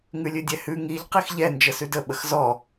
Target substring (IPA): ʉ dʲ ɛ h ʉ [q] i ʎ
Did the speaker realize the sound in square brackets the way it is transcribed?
no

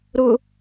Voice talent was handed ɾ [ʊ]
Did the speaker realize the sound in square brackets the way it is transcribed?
yes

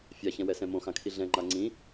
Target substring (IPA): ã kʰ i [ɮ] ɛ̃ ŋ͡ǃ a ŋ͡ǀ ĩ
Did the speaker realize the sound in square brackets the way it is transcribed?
yes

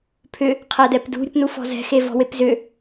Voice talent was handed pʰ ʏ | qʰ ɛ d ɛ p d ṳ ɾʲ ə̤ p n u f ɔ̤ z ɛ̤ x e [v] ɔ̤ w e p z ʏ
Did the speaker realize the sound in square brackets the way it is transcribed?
yes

